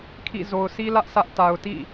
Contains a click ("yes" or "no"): no